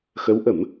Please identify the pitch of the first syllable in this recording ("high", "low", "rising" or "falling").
rising